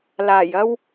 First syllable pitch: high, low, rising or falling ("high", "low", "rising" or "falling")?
low